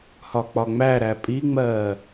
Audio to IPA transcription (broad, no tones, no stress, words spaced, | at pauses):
hɒk͡pɒŋ͡mæɾæ pʼiŋ͡mɜː